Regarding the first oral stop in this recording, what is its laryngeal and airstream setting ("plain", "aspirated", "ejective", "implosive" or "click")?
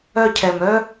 aspirated